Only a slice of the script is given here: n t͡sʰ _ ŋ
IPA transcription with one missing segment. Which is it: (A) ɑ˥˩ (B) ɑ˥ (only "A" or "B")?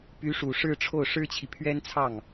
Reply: A